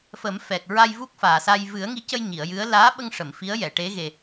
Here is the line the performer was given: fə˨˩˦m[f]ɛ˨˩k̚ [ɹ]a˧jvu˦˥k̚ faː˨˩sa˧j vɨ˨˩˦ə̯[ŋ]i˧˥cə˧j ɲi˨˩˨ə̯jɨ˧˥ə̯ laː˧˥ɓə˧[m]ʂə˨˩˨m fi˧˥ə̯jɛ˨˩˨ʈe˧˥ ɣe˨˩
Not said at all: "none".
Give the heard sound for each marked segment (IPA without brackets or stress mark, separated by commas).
f, ɹ, ŋ, ŋ